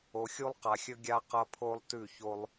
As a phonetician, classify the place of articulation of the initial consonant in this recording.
velar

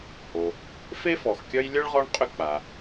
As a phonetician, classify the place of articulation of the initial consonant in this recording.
glottal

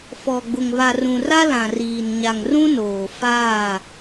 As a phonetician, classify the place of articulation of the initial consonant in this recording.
labial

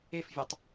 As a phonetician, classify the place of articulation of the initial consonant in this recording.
labial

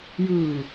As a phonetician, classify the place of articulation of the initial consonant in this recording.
palatal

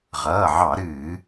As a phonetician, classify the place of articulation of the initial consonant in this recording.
uvular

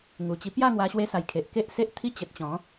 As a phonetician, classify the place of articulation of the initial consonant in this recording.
velar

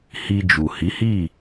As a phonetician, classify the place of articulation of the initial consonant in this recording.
glottal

